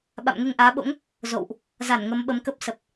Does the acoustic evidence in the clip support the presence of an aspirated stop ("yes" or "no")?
no